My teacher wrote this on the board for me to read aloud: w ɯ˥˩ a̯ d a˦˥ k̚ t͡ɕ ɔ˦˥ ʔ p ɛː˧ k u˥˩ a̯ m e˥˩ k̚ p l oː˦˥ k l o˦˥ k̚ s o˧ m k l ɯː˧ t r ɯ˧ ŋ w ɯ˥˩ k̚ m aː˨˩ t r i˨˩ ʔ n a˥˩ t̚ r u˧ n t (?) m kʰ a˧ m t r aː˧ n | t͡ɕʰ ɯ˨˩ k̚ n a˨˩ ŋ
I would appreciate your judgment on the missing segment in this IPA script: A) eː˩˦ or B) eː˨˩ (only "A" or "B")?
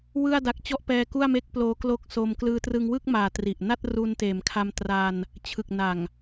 A